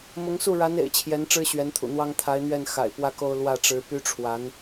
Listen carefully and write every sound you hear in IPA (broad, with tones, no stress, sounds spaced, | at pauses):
m ʊ˧˥ ŋ s u˥˩ ɻ a˧˥ n ḛ˨˩ ɪ̯ t͡ɕʰ j ɛ˧˥ n ʈ͡ʂ ɻ̩˥ ɕ ɥ ɛ˧˥ n t̪ʰ ṵ˨˩ n̪ w ɑ˥ ŋ t̪ʰ a˧˥ ɪ̯ n̪ ɥ ɛ˥˩ n x a̰˨˩ ɪ̯ p w ä˥ k o˥ ʊ̯ l w ä˥˩ ʈ͡ʂ ɻ̩˧˥ p y˥ ʈ͡ʂʰ w a˧˥ n